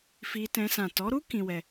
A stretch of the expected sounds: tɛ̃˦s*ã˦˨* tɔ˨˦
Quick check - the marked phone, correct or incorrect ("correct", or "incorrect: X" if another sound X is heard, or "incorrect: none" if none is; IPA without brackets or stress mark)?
correct